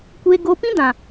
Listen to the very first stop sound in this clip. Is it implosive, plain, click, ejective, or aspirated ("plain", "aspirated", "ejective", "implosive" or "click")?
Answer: plain